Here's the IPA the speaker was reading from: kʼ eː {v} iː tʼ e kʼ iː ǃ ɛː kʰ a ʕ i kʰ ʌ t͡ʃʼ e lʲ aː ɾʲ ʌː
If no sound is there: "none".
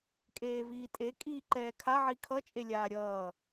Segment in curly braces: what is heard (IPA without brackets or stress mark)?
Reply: v